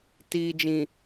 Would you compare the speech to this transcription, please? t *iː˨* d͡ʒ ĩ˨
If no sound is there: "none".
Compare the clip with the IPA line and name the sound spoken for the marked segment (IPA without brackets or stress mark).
iː˨